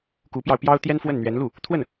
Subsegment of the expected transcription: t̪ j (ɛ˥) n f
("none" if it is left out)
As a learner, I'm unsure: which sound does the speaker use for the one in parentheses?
ɛ˥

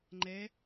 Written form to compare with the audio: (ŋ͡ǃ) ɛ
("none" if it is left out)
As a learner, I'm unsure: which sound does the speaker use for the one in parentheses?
ŋ͡ǃ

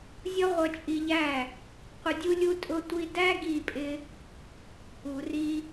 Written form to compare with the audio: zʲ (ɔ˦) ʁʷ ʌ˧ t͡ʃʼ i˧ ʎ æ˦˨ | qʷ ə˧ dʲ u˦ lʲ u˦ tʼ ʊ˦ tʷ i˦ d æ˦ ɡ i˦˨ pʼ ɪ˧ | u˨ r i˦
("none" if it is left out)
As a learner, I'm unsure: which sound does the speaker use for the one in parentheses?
ɔ˦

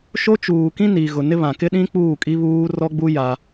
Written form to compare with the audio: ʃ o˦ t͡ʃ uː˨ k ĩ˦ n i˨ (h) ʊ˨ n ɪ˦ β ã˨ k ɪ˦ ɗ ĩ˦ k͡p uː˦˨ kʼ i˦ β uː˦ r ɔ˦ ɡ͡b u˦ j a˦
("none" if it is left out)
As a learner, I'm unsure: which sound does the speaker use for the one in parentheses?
ɣ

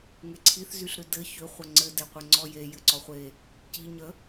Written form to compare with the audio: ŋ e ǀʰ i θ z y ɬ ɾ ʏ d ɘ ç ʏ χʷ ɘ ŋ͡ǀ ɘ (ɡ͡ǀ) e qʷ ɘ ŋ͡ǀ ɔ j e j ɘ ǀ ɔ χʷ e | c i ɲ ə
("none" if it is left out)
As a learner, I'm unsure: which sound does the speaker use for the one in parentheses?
d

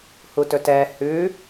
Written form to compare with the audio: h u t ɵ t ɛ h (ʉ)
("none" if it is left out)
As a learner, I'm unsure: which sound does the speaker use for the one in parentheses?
ʉ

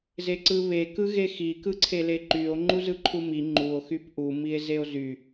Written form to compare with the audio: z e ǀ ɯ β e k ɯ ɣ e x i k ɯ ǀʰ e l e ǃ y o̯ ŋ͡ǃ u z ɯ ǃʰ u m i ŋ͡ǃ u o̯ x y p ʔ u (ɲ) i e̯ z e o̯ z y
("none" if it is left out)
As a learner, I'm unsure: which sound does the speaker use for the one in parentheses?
m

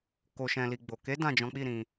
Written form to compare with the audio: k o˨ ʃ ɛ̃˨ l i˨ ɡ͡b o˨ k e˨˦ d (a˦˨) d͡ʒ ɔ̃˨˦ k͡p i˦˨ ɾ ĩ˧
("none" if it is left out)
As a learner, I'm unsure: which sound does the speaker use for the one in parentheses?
ã˦˨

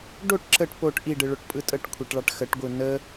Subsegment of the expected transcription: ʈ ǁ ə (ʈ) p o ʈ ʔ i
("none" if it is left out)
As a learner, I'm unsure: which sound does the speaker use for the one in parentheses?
ʈ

